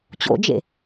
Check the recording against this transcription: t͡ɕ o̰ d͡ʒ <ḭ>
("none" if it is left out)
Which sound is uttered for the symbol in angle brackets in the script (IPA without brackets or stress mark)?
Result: ḛ